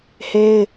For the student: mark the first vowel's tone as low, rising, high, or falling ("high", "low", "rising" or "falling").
high